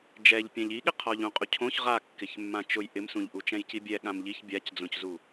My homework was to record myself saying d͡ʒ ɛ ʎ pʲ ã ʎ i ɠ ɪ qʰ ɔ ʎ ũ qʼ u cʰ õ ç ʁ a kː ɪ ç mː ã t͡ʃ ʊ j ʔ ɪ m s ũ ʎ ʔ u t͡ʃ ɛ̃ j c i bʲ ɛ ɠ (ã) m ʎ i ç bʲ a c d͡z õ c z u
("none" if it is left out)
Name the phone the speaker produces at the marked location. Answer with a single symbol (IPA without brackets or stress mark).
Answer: ã